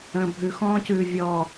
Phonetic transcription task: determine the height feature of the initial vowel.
mid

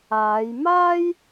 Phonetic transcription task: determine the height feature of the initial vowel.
low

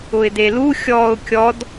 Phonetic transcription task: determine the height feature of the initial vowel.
high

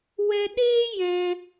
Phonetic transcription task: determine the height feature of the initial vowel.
mid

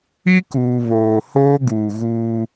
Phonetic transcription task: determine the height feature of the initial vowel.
high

